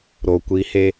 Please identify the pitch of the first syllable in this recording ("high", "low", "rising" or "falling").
low